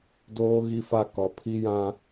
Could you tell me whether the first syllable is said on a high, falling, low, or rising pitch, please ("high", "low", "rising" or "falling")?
high